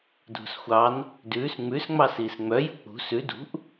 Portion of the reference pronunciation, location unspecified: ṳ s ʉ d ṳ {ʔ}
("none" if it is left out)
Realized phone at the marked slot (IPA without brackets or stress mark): ʔ